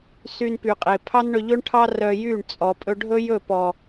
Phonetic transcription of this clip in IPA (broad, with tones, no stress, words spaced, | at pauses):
sy˧npy˨ qʼe˨ pʰɑ˦nɳɵ˧ʎɵ˦ɳʈʰɑ˦ rœ˧jy˦˨ɳt͡sʼɔ˨ pʼɵ˧ɖʱɵ˦jɵ˦˨pɔ˨